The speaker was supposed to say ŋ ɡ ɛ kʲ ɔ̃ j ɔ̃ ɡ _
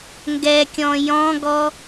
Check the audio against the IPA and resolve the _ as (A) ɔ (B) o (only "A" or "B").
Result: A